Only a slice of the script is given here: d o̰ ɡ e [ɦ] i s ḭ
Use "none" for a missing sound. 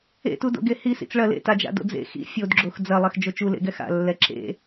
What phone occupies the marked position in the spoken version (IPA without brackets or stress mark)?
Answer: h